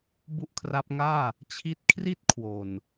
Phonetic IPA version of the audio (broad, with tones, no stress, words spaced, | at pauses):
bu˥˩ʔkʰra˦˥p̚ŋaː˥˩ | t͡ɕʰi˦˥t̚kʰri˥˩t̚kʰwo˨˩n